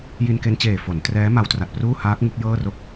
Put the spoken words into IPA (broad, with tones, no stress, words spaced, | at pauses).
ji˧nke˧nt͡ɕeː˨˩ fo˩˦ntrɛː˦˥ ma˦˥wtra˨˩t̚pruː˥˩ haː˦˥k̚ ŋu˦˥k̚jɤː˥˩ro˥˩k̚